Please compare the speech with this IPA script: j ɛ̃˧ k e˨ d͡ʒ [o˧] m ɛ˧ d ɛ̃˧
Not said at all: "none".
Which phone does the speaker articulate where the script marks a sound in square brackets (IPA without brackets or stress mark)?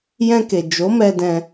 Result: o˨˦